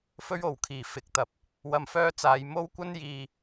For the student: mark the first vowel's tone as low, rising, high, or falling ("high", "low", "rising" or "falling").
high